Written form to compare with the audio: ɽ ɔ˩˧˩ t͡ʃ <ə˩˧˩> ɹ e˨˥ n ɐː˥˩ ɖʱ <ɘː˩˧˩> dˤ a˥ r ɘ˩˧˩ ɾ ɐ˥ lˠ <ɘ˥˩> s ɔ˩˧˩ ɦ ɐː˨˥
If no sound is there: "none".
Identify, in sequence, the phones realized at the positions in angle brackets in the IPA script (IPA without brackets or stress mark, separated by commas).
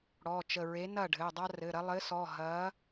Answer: ə˩˧˩, ɘː˩˧˩, ɘ˨˥